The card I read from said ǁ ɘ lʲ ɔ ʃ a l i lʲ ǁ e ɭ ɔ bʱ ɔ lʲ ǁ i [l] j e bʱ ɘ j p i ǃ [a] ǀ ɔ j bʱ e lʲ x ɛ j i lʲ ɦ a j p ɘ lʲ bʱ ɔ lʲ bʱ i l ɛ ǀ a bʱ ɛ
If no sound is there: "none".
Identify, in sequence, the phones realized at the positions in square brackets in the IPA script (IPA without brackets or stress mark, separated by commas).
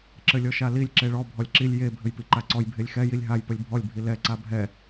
lʲ, a